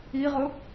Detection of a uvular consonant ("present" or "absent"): present